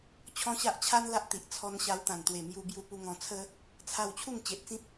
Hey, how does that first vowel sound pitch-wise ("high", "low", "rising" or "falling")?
high